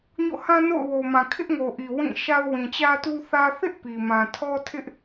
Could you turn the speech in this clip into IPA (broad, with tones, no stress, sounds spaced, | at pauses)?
ɲ o̰˦˨ h ã˦ n o̰˦˨ ʊ̯ w o˨ m ã˨ kʰ ɪ˦ ʔ ŋ o˨ ʔ i˨ w ĩ˦˨ ʃ a˦ ʊ̯ w ĩ˨ t͡ɕ ä˦ t u˦ θ ä˦ θ ɪ˦ ʔ p i˨ m ã˨ tʰ ɔ˦ tʰ ɪ˦ ʔ